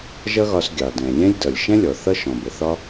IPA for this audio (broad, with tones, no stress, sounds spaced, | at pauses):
ʒ ʌ˥ ɣ ɒ˧ s ɡʲ ɑ˩ d ɛ̃˩ lʲ ɛ̃˥ lʲ d ʌ˩ lʲ ʃ ɛ̃˥ lʲ ɔ˩ θ ʌ˥ ʃ ɔ̃˩ b ə˩ θ ɒ˥